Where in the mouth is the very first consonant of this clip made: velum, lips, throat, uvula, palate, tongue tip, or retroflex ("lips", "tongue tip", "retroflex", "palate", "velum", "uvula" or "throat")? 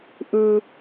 throat